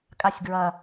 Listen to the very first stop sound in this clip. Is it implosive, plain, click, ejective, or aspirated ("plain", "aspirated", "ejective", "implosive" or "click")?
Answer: ejective